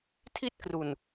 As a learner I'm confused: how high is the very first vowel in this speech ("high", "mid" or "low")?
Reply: high